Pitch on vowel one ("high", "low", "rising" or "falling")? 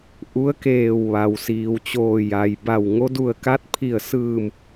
rising